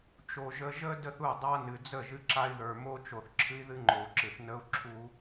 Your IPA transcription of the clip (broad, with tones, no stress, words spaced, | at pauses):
t͡ʃo˨ ʒə˧ʒə˦ də˦θu˦˨dˤa˦nɨ˨ d͡zə˦˨ʒɨ˧ǁa˧i̯ðə˞˨ mo˦t͡ʃo˨θ ǁʰɨ˦i̯ðɨ˦ŋ͡ǃo˨u̯ǁɨ˨θ nə˦u̯ǁʰu˦